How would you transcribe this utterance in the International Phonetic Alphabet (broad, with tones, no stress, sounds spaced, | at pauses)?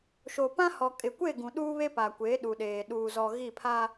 ʃ o˨ p ã˦ h ɔ˨ kʼ ɪ˨ kʷ e˦˨ ɡ ũ˨ ɗ uː˦ β e˦ p a˨ kʷ e˨˦ ɗ u˨ ɗ eː˨ ɗ uː˨ z ɔ˨ ɣ i˦˨ pʰ a˦